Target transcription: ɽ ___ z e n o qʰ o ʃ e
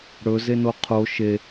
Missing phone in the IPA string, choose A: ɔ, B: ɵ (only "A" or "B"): B